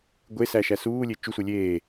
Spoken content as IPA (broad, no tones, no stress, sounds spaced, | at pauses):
ɡʷ e s æ ʃ æ s uː lʲ e t͡ʃ u sʷ e lʲ eː